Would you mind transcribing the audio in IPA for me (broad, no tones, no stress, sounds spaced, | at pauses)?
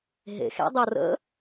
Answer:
ɦ ḛ x ḛ dˤ ɤ r ə̰